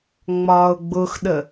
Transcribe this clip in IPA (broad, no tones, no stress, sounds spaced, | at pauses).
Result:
ŋ͡m ɒː ʊ̯ ɡ͡b ʊ x ɗ ə